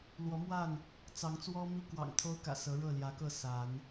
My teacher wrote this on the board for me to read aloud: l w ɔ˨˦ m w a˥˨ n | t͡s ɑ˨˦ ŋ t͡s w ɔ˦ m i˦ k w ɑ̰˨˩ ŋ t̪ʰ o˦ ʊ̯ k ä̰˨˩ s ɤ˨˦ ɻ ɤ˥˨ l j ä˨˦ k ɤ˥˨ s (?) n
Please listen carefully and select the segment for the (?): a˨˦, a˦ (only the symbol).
a˨˦